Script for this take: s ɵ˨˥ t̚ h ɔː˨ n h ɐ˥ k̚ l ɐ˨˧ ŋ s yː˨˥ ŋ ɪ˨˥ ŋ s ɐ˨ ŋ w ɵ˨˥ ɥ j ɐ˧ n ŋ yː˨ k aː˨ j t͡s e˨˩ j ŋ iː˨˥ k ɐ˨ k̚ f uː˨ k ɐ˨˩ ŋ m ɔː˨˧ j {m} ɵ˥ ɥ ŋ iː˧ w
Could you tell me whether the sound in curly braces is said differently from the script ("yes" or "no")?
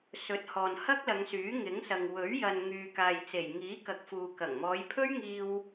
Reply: yes